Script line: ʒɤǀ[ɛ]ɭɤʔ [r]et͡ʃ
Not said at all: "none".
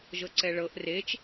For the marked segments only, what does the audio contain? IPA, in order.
ɛ, r

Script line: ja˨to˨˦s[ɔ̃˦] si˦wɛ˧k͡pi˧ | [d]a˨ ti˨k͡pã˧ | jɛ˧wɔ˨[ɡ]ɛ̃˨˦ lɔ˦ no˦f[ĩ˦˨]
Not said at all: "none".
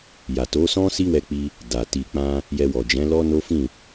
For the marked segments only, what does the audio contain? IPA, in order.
ɔ̃˦, d, d͡ʒ, ĩ˦˨

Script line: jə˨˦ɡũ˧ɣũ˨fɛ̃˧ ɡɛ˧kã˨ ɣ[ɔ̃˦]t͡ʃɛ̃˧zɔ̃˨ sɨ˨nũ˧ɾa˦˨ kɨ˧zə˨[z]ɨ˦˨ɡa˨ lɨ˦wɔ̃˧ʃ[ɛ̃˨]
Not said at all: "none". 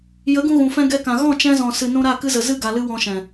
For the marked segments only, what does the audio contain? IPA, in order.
ɔ̃˦˨, z, ɛ̃˨

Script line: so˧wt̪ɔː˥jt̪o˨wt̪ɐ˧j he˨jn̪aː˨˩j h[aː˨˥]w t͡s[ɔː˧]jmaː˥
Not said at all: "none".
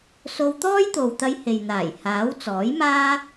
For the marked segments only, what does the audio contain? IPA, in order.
aː˨˥, ɔː˨˥

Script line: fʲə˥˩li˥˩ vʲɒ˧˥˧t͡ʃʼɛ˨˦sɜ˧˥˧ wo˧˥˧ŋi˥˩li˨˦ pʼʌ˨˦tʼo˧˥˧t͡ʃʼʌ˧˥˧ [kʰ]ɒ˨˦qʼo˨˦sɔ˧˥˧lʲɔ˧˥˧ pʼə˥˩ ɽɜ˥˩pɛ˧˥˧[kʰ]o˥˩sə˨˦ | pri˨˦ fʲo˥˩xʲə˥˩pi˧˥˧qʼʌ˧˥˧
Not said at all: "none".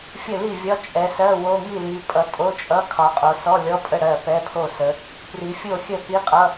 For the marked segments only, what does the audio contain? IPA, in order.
kʰ, pʰ

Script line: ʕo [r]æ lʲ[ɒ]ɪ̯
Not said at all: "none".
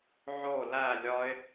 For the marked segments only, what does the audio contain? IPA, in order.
l, ɒ

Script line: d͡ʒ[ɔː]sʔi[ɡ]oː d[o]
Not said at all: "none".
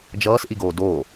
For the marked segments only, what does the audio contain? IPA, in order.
ʌː, ɡ, o

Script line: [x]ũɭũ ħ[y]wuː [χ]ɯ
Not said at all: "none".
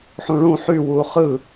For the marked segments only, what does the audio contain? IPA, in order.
ħ, y, χ

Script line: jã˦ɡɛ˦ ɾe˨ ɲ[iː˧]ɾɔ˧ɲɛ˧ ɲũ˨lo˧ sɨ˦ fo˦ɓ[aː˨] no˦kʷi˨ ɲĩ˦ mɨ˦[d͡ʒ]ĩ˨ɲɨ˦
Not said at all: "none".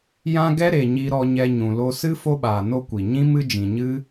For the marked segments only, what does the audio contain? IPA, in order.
i˧, aː˨, d͡ʒ

